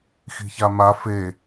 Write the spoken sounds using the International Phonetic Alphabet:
x i̤ ç a m a f e

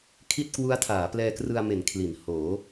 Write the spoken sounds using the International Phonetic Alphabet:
kʰ i˥˩ t̚ k w u˦˥ a̯ tʰ aː˩˦ p l ɛː˧ k r ɯ˧ a̯ m e˩˦ n kʰ l i˩˦ n h oː˩˦

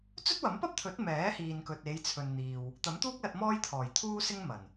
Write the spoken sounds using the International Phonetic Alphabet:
t͡s ɵ˥ t̚ w ɐ˨˥ m p ɐ˥ p̚ t̪ʰ ɵ˨˥ t̚ m ɛː˨˥ h iː˨ n k ɵ˨ t̚ e˨˧ j t͡sʰ ɵ˨ n n̪ iː˨ w | t̪ ɐ˨˥ m t̪ uː˥ k̚ l ɐ˧ t̚ m ɔː˥ j t̪ʰ ɔː˨˩ j t̪ʰ uː˥ s ɪ˥ ŋ m ɐ˨˩ n

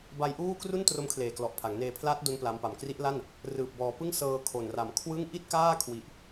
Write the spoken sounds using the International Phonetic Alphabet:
b a˧ j ʔ uː˥˩ k r u˥˩ n t r o˦˥ m kʰ l eː˨˩ k l ɔ˨˩ ʔ pʰ a˩˦ ŋ n eː˧ pʰ l aː˦˥ t̚ d o˧ n p l a˦˥ m p a˨˩ m k r i˦˥ ʔ l a˥˩ n | r ɯː˨˩ p̚ b ɔː˨˩ p ɯ˥˩ ŋ s ɤː˧ kʰ o˨˩ n r a˨˩ m kʰ w ɯ˥˩ ŋ ʔ i˥˩ t̚ k aː˥˩ kʰ w i˨˩ ʔ

